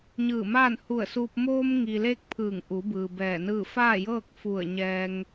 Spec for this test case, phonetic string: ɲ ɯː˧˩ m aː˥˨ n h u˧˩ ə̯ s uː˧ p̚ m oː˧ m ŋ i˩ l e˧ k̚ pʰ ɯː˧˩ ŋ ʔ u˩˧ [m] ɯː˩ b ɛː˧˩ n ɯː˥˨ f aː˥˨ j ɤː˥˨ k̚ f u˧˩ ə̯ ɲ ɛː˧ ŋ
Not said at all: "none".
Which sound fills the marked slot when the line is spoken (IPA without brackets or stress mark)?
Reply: b